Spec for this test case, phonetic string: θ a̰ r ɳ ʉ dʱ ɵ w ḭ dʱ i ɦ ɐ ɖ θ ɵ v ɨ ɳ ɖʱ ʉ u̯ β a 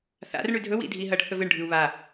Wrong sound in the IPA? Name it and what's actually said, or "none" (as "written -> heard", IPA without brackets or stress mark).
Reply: none